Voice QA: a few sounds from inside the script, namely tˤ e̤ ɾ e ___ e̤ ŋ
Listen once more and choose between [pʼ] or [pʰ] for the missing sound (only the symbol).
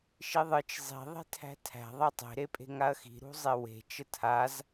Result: pʼ